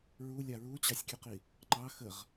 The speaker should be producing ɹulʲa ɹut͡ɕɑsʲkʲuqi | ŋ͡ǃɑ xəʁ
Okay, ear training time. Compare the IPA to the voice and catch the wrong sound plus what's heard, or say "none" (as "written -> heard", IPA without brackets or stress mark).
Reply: none